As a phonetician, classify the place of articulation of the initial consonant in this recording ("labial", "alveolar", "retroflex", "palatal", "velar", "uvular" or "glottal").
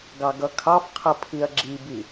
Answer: velar